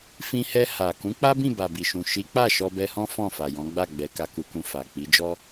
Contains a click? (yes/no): no